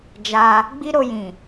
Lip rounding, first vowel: unrounded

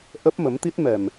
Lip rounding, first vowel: unrounded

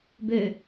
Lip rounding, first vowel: rounded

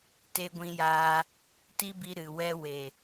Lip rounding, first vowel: unrounded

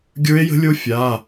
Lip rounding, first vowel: unrounded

